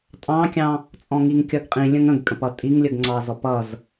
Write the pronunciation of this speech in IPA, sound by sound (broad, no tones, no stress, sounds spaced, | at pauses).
tʼ ɑ̃ kʲ ɑ̃ | t͡sʼ ɔ̃ ŋ i ŋ kʲ ʌ ɡ qʼ ĩ lʲ ə̃ ŋ ə̃ ɡ kʼ ə̃ p ʌ tʼ i ŋ lʲ ə ɡ ŋ͡ǀ ɑ z ɔ p ʌ z